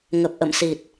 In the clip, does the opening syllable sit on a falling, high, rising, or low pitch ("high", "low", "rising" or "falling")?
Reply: low